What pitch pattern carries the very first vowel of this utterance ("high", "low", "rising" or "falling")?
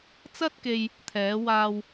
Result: high